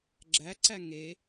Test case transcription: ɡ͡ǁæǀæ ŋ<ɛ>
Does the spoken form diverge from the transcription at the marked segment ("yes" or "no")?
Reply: yes